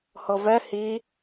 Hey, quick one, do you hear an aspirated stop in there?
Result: no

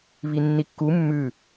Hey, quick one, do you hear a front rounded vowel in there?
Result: no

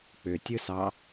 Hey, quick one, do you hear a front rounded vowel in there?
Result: yes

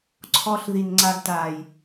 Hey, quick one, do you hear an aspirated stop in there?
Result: yes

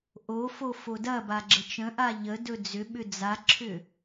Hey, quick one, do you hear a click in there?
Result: yes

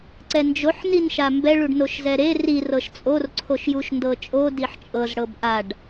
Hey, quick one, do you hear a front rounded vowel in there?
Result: no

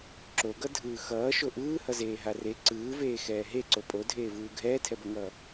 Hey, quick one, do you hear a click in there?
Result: yes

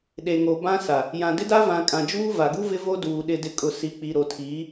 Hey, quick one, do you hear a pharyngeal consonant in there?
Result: no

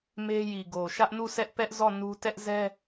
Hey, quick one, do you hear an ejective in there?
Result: no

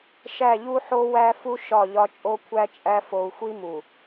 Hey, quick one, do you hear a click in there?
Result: no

